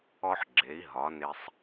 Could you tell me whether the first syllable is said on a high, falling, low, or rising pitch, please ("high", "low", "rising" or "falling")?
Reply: high